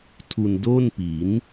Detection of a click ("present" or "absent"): absent